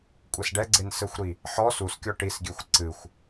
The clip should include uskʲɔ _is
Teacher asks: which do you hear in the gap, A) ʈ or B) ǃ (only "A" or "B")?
A